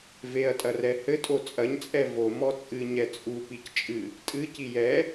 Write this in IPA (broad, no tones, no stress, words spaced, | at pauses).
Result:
veɐ̯tʼɐrɛ hɘtʼo t͡sʼɐɲt͡sʼɛ vomɔ t͡sʼɨɲɛ t͡sʼupic t͡ʃʼɨ | tʼɨci jɛ